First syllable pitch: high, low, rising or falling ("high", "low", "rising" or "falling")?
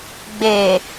low